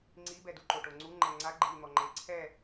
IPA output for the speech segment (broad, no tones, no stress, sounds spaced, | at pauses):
ŋ͡ǀ i b ɛ d u ǃ o ʈ o ŋ͡ǀ u ŋ͡ǃ ɛ ŋ͡ǀ a ɡ͡ǃ i n̪ ɔ ŋ͡ǃ e ǀʰ ɛ